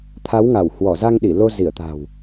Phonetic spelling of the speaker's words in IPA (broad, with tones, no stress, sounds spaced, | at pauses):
t̪ʰ a˨˦ w ŋ a˧˩ w h w ɔ˧˩ z a˧ ŋ ɗ i˧˩ l o˧ z i˧˩ ə̯ t̪ a̤˨˩ w